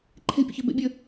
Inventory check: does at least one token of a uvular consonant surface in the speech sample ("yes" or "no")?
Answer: no